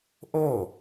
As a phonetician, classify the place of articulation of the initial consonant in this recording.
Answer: glottal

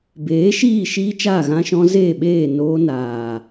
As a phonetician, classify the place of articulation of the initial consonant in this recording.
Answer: labial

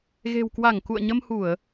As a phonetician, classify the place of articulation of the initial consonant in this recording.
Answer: velar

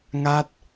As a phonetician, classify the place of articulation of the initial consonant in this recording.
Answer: velar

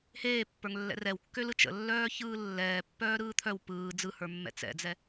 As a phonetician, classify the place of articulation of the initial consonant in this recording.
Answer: glottal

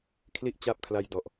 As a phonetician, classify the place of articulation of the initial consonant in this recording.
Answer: velar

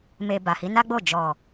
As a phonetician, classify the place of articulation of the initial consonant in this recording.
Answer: labial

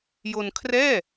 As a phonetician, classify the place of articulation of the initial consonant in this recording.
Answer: palatal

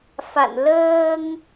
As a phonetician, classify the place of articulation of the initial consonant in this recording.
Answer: labial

